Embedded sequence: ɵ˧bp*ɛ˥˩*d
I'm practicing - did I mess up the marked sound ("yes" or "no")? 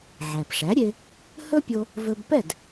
no